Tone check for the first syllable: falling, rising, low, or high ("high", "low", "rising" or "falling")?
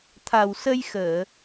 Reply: low